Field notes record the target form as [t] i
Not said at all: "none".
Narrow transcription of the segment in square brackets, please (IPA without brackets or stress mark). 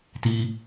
t